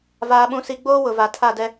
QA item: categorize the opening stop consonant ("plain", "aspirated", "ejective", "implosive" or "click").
implosive